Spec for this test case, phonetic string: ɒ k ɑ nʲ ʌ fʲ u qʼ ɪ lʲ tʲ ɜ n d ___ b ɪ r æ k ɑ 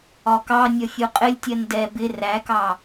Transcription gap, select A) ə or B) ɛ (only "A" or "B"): B